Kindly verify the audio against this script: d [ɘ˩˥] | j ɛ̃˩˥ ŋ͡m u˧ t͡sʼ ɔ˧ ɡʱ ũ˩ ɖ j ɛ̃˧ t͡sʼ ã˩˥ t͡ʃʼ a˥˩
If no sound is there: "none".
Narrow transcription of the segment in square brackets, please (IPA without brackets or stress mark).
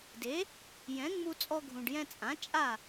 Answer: e˩˥